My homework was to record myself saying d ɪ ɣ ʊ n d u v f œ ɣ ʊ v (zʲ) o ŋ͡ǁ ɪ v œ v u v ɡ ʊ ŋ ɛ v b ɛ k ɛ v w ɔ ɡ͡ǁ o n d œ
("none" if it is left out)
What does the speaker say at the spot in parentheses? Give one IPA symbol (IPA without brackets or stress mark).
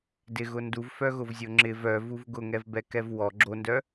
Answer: zʲ